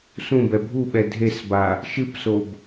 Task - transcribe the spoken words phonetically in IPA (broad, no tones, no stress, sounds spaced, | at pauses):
s ũ b ɛ bʱ u ɓ ɛ dʱ e s b a | ʃ ɨ p s o b